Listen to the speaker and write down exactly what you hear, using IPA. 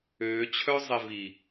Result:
øː t͡ɕʰ œ zˤ e v i

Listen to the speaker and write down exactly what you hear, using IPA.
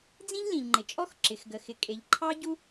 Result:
d͡z ĩ˥ ʎ l ĩ˩ ʎ ŋ͡ǃ ɪ˩ t͡ʃʼ ɔ˥ x ǁ ɪ˩ x ɡ ə˩ x ɪ˩ kʼ e˩ ʎ ǃʰ ɑ˥ ɟ u˥

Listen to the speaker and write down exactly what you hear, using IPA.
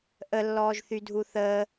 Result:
ʔ ə lː ɔː ʒ θ y dʱ u θ əː

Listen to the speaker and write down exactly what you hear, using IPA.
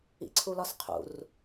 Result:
ḭ ǀʰ u l ɒ s qʰ ṵ r

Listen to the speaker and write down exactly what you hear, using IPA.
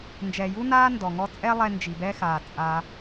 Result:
n d͡ʒ ɛː˨ j u˦ n aː˦ n d ɔ˨ ŋ ɔ˧ t͡sʼ ɛ˦ lˠ ɛ˧ n d͡ʒ i˨ b ɛ˦ x aː˨ t͡sʼ a˧

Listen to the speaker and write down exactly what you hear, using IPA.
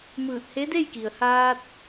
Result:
m ɯː˧˩ t̚ h e˧˥ d e˥˨ j k i˩ ə̯ h aː˧ t̚

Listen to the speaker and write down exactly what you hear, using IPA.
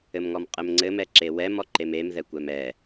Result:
ɘ m ŋ ɔ m qʼ ɘ m ŋ͡ǀ ɘ m ɛ ǁ e w ɛ m ɔ ǃ e m e m ð ɛ kʷ ɛ m ɛ

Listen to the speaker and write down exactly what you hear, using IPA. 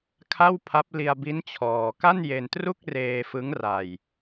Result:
kʰ a˥˩ w pʰ a˦˥ p̚ l i˧ a̯ b i˦˥ n t͡ɕʰ ɔː˧ k a˥˩ n j e˧ n t r u˥˩ k̚ r eː˧ f ɯ˦˥ ŋ r a˧ j

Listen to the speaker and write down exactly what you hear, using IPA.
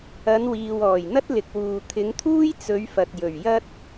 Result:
ɐ˨˧ n w iː˨ w ɔː˨˩ j n̪ ɐ˥ t̚ l ɪ˨ k̚ w uː˨ t̪ʰ ɪ˨˧ ŋ t̪ʰ uː˥ j t͡s ɵ˨˧ ɥ f ɐ˨ t̚ j ɵ˨˩ ɥ j ɐ˥ t̚

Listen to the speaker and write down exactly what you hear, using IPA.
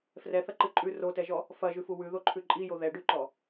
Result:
f r ɛ θ ɐ ǃ ɨ ǃʼ ʉ r o t ɛ ʒ ɔ | f ɐ ʒ ʉ f u w ʉ ð o ǃʰ ʉ ǃʼ i j o ð ɛ ɖ ʉ ǃ ɔ

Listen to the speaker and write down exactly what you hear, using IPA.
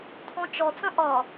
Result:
t̪ʰ ɔ̃ t͡ʃ ɔ t͡s ə̃ ʔ ɒ

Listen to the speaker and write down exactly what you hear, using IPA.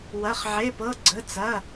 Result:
w ɐ˩˧˩ χ ʕ e˩˧˩ p ɤ˩˧˩ ɡ͡ǀ ə˩˧˩ t͡s ɐ˩˧˩

